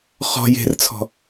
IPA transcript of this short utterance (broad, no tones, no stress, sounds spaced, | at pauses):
χ ɔ̤ j e̤ r t͡sʰ ɔ̤